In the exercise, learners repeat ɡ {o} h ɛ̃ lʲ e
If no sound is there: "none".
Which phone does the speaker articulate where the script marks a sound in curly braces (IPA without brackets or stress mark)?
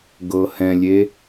ɤ